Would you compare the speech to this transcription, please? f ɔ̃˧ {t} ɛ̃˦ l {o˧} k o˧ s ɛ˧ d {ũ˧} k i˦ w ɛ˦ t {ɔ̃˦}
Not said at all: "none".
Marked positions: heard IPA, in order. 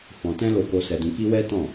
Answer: t, o˧, ũ˧, ɔ̃˦˨

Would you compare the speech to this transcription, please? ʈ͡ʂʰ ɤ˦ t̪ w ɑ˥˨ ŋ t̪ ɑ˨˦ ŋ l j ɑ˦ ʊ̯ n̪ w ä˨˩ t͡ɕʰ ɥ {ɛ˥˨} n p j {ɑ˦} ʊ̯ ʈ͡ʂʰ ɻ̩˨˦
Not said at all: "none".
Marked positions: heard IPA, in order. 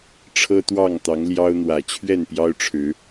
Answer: ɛ˥˨, ɑ˦

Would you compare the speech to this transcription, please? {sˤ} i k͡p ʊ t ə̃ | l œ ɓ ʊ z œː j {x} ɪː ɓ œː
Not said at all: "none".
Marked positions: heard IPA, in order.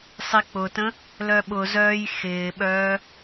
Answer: sˤ, x

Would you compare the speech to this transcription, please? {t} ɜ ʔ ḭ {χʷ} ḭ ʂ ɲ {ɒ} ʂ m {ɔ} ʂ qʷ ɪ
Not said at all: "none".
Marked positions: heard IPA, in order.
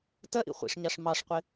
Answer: t, χʷ, ɑ, ɑ

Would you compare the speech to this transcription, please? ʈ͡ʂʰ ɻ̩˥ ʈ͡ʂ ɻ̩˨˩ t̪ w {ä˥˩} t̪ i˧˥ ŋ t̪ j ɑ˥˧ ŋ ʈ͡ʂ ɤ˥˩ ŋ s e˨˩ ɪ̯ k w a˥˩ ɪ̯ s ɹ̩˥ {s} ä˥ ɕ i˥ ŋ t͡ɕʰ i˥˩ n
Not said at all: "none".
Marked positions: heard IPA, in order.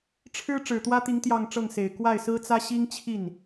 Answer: ä˥, t͡s

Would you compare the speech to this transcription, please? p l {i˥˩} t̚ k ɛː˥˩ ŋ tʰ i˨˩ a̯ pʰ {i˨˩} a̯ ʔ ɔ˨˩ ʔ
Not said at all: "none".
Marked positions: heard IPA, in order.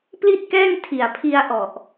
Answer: i˥˩, i˧

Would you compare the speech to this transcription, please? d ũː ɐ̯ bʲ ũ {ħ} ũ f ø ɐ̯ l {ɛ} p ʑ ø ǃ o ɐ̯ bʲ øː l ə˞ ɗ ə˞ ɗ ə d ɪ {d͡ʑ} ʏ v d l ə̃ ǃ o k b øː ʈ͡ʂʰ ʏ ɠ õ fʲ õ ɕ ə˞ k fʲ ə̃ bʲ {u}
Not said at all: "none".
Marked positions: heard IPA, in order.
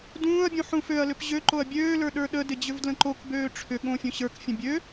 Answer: ħ, ʏ, d͡ʑ, ø

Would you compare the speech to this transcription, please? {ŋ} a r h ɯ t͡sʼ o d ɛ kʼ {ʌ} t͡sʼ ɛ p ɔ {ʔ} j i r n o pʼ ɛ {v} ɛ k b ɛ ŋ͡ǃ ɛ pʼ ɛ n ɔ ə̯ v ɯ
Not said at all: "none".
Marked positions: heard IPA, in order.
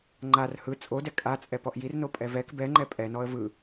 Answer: ŋ͡ǃ, a, ʔ, v

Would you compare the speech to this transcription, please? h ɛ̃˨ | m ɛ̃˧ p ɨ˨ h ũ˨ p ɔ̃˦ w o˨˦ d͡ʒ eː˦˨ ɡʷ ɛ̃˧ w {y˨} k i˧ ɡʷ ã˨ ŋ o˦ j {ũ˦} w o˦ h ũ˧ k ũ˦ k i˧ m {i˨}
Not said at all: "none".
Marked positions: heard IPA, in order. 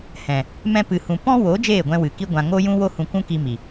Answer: ɨ˨, ũ˦, i˨

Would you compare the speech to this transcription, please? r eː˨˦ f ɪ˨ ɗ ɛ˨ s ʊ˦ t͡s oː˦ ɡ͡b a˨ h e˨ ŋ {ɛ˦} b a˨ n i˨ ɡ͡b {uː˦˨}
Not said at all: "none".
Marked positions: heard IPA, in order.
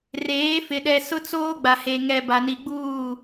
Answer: ɛ˨, uː˦˨

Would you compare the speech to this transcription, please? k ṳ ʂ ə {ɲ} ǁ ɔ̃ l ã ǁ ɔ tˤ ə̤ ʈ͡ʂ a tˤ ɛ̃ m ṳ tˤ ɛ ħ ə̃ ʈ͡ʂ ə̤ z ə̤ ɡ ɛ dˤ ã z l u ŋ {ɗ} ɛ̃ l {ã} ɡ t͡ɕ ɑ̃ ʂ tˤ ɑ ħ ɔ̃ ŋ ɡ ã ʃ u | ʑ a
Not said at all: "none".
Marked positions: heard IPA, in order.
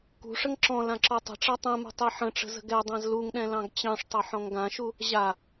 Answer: ŋ, ɗ, ɑ̃

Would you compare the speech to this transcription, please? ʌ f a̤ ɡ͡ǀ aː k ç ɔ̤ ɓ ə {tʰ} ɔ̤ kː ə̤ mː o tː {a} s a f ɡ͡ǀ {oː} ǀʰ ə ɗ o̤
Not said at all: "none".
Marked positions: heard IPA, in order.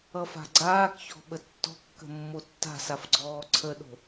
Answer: tː, a̤, ɔː

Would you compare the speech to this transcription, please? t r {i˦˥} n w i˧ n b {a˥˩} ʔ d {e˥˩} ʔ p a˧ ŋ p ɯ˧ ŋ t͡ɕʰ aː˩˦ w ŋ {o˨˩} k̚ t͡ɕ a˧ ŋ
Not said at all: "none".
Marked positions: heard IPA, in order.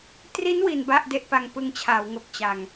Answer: i˦˥, a˥˩, e˥˩, o˨˩

